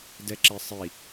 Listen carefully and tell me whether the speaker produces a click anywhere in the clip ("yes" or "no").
yes